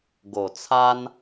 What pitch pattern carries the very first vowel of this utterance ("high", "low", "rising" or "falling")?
low